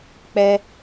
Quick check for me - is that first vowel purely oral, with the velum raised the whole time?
yes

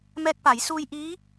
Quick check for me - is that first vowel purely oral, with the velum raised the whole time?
yes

